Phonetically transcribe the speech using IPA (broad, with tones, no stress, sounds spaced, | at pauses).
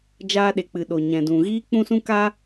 d͡ʒ aː˧ ɗ e˨ k͡p ɨ˨ ɗ o˨ ɲ ɛ̃˨ d ũ˨ ɣ iː˦ k͡p ũ˦ s ũ˦ k a˦